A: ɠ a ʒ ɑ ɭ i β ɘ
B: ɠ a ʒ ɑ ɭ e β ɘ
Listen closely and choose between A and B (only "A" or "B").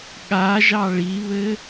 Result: A